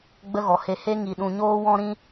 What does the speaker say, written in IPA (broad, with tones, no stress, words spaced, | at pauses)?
ɡ͡bə˦ɣɔ˨he˧ he˦ ŋi˨ɗũ˨ɲoː˦ wɔ̃˦ɾĩ˦